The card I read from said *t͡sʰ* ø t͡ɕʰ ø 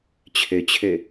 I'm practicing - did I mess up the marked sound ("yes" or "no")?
yes